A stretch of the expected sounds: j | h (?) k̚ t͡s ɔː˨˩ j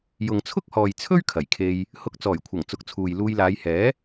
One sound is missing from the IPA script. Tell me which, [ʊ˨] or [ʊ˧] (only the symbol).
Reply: ʊ˧